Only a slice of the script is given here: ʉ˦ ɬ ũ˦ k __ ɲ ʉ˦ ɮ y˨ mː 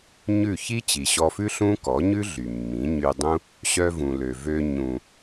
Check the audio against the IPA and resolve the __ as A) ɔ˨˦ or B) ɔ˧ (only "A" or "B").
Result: A